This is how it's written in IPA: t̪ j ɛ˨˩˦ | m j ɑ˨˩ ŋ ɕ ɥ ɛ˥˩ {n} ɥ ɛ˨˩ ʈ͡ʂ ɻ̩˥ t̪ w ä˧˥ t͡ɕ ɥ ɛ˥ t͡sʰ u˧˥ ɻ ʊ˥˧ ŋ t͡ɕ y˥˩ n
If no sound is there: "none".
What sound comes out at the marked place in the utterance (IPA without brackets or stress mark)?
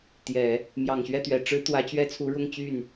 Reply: t̪